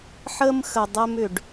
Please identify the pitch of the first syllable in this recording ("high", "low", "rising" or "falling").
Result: high